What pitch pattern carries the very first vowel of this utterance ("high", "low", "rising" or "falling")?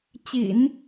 low